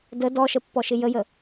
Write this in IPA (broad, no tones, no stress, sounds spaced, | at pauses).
d ə d ɔ ʃ ə pː ɔ ʃ ɪ j ə j ə